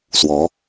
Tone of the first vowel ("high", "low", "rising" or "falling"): rising